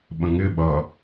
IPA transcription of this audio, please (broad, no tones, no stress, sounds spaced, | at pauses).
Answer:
ɓ ə̃ ŋ ɪ ɓ ʌ